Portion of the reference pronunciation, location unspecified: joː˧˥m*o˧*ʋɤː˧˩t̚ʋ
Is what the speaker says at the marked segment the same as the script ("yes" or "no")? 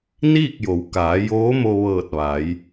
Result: yes